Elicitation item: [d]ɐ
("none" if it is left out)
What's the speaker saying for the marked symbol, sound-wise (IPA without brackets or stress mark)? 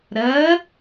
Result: ɾ